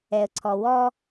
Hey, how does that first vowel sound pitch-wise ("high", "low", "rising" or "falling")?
low